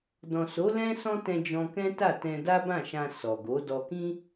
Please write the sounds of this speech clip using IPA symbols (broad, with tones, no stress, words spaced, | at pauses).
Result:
dɔ̃˨so˨˦ lɛ̃˦ sɔ̃˦tɛ̃˧ d͡ʒɔ̃˧kɛ̃˦ta˦˨ tɛ̃˧da˦bã˦˨ʃã˧ sɔ˨ɡo˨˦ dɔ˧kĩ˦